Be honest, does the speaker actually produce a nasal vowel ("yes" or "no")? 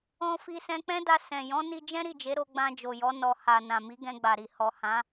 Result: yes